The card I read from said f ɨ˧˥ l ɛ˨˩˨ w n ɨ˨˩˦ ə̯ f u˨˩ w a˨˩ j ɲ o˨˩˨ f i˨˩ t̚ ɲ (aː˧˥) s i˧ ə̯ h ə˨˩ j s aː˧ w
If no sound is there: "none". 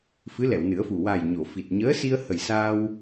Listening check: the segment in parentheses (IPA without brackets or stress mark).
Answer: əː˧˥